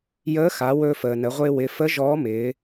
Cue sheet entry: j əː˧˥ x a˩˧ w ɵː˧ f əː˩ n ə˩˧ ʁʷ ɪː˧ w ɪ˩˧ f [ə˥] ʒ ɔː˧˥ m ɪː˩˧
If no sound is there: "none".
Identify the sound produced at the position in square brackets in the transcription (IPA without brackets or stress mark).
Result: ə˧˥